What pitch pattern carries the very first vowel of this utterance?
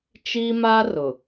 high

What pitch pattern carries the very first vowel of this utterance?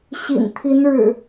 low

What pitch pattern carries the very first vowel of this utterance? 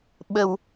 low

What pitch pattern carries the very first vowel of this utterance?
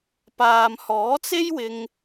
low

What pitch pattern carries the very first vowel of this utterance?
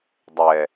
low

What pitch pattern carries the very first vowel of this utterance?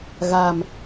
low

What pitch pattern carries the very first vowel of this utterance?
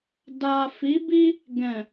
low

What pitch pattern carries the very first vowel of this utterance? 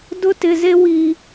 high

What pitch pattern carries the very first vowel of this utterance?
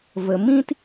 low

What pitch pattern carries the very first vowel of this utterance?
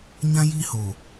high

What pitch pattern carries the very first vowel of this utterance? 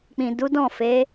low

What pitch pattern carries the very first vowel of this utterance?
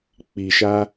low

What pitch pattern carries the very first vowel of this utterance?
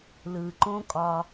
low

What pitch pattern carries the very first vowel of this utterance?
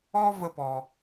high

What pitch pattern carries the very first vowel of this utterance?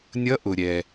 rising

